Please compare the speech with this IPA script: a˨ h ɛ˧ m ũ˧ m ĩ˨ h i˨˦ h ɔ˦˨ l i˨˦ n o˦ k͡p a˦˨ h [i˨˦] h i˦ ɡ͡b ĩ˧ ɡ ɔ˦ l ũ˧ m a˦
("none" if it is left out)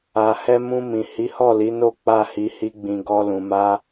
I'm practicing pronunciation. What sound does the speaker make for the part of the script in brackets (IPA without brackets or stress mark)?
i˨˦